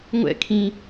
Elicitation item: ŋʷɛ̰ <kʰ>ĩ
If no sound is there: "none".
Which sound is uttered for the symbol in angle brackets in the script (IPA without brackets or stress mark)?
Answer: kʰ